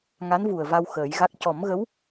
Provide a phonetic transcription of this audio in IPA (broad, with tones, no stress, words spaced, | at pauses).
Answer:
ŋa˧˥nvu˨˩ə̯va˧w xəː˨˩˦jɣa˦˥k̚ cɔ˨˩˦mɣə˧˥w